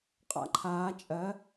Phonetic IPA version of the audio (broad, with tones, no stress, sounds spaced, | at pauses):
qʼ a̰˧ ǃʰ aː˩˧ t͡ʃʼ ɜ˩˧